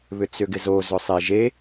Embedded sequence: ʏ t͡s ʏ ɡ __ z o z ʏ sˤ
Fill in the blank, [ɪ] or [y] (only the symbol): ɪ